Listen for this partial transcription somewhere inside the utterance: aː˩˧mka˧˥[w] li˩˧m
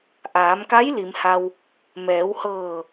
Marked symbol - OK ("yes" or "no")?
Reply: no